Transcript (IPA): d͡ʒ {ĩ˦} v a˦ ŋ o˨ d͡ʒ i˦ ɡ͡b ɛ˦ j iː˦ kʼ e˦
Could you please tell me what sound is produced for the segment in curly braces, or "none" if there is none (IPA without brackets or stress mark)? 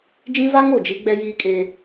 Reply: ĩ˦